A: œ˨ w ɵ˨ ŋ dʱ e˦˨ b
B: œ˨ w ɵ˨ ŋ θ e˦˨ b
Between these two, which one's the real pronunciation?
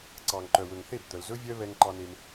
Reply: B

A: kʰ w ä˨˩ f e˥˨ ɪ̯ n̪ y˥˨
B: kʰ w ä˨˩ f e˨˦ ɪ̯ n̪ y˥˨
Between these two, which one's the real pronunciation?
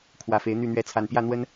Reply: B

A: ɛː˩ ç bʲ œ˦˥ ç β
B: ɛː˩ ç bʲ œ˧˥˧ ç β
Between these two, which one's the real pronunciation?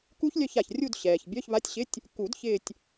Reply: B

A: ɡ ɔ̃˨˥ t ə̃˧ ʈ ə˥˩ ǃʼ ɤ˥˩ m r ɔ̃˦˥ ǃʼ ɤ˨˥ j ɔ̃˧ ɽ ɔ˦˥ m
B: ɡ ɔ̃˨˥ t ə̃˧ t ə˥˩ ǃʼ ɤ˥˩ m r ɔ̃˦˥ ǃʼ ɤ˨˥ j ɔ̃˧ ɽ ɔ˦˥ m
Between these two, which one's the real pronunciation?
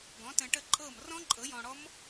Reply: A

